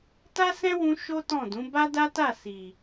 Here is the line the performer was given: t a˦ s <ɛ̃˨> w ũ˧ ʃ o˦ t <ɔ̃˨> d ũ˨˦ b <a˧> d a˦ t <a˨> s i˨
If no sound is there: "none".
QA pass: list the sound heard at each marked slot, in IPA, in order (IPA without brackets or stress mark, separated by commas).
ɛ̃˦, ɔ̃˦˨, a˦, a˦˨